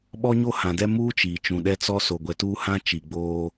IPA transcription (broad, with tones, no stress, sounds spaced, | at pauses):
ɓ ɔ˦ ɲ o˦ h ã˨ d ɛ˦ m uː˦ t͡ʃ iː˨ t͡ʃ ũ˨ ɗ ɛ˦ t͡s ɔ˦ s o˨ ɡʷ ɛ˨ t uː˦ h ã˦ t͡ʃ i˨ ɡ͡b oː˦